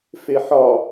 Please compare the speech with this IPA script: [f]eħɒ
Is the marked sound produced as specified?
yes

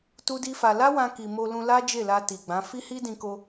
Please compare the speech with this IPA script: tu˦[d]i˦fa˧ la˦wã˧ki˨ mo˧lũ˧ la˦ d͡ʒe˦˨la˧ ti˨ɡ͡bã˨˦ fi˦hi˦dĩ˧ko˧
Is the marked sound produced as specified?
yes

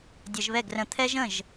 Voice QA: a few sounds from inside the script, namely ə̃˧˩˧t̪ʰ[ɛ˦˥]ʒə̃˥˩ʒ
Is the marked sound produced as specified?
yes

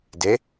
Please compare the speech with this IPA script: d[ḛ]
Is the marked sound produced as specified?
no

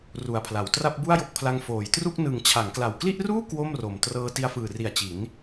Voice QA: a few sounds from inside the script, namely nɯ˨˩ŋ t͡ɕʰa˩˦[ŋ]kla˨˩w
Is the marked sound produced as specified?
yes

